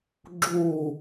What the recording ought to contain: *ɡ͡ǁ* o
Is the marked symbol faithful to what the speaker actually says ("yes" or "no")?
yes